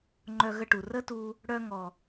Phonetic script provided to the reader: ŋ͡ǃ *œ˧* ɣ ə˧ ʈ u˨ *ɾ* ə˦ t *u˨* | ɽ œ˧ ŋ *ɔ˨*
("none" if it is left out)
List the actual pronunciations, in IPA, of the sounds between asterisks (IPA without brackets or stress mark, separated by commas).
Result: œ˧, r, u˧, ɔ˨